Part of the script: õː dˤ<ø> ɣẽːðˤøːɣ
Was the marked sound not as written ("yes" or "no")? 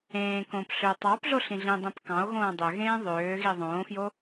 no